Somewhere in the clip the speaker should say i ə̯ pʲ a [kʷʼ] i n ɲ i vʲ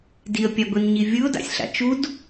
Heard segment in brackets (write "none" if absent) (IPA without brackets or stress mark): ɡʷ